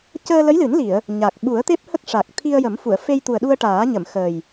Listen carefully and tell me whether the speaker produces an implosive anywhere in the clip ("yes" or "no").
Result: yes